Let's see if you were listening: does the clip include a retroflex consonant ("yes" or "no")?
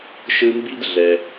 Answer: no